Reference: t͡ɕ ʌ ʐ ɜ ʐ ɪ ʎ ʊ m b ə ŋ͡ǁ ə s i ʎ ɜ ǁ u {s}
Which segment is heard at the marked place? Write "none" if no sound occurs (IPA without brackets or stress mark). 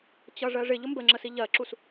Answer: s